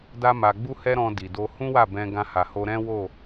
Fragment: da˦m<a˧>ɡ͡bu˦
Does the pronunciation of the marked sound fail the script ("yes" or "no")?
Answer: no